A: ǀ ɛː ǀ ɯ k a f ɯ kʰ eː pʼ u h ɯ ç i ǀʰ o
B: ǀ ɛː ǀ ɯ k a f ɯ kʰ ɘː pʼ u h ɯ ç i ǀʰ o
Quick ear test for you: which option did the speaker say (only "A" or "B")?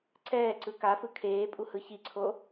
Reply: A